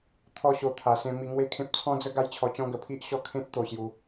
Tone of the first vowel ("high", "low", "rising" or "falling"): falling